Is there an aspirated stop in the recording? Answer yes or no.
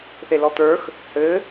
no